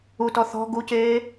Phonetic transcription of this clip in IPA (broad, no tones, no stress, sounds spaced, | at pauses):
u t ɔ θ ɔ̤ ɡ u c eː